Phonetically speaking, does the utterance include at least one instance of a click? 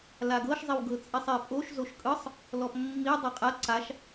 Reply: yes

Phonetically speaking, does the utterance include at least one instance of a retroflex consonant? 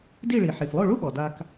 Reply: yes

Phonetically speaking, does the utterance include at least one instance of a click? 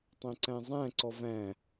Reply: yes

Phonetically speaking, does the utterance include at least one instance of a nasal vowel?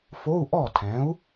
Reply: yes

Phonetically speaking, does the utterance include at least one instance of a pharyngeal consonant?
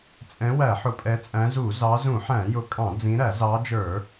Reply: yes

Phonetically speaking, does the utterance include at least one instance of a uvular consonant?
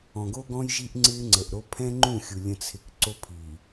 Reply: no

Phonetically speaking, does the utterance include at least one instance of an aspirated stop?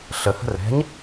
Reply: no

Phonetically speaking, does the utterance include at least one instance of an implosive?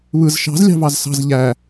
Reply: no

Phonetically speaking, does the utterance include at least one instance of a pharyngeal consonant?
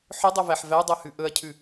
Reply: yes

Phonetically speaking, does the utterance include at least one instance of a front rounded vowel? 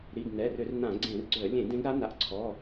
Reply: yes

